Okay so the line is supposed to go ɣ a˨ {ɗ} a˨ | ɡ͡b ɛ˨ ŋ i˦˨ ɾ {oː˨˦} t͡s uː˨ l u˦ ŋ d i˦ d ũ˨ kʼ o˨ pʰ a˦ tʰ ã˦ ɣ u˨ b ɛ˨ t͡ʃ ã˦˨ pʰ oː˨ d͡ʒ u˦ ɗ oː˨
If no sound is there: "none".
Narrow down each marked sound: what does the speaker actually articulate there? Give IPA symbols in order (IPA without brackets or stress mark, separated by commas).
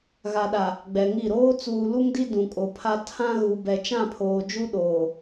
ɗ, oː˦